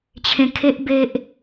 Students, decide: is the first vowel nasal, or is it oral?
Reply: nasal